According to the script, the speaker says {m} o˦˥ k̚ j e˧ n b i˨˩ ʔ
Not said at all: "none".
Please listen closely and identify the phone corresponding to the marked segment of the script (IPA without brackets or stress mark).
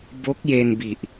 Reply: b